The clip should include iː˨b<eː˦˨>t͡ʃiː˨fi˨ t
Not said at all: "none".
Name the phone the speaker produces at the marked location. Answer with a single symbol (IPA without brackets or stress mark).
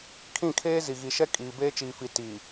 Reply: eː˦